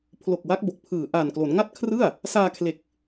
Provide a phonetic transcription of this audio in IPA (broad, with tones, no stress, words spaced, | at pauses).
pʰlo˨˩k̚wa˦˥k̚ bo˨˩k̚pʰɯː˨˩ ʔaː˨˩nklo˩˦n ŋa˥˩t̚kʰrɯ˥˩a̯ | saː˧kʰle˨˩k̚